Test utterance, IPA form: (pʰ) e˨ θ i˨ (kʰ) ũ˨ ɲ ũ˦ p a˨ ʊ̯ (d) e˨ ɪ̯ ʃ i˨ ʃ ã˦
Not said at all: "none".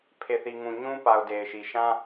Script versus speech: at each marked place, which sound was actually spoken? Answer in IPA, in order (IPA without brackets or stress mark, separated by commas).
pʰ, ŋ, d